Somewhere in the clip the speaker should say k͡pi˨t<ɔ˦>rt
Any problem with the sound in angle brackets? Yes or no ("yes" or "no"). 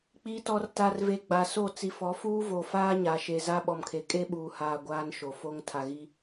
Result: yes